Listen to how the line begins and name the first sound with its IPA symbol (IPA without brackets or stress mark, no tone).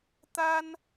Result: t̪